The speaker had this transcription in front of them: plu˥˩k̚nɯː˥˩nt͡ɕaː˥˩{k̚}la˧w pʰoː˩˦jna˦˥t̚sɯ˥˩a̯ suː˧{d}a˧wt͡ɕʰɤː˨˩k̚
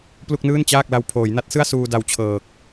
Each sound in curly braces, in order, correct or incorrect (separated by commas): correct, correct